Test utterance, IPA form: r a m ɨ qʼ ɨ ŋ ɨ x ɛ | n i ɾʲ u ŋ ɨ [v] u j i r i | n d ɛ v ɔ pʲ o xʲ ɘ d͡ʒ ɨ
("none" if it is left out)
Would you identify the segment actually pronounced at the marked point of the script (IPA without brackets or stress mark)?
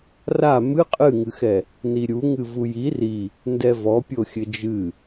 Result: v